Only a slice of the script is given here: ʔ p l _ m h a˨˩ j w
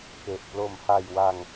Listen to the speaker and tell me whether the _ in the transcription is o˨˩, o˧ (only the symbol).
o˨˩